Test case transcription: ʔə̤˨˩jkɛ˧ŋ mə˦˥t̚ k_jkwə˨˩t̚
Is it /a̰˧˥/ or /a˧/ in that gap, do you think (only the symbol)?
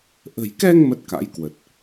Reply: a̰˧˥